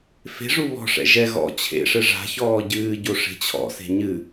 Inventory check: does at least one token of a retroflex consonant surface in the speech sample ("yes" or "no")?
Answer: yes